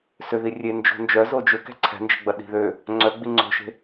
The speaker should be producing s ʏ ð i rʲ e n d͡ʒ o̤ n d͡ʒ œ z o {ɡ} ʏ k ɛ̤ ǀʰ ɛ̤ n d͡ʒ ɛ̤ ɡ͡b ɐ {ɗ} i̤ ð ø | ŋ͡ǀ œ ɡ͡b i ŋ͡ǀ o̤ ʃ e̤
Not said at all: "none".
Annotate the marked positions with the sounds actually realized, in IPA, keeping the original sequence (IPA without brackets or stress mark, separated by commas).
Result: d͡ʒ, ɗ